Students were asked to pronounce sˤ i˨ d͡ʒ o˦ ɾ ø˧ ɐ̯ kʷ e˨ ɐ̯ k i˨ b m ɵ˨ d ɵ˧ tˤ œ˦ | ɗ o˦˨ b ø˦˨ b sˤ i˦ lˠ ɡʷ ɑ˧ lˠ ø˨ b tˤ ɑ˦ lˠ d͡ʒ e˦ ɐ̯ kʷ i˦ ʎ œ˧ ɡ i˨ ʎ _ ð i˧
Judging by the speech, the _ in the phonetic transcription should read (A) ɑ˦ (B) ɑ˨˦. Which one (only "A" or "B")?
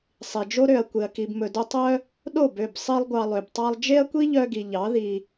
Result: B